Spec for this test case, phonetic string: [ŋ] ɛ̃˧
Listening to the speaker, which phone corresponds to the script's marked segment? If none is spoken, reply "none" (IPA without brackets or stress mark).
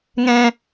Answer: ŋ